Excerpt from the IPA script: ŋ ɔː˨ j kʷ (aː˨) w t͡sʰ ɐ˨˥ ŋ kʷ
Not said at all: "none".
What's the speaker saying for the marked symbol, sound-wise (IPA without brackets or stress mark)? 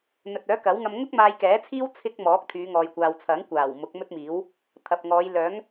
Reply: aː˨